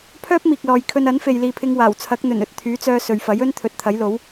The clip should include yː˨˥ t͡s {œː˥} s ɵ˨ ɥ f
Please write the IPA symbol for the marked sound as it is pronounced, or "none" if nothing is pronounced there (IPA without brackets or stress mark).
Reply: œː˧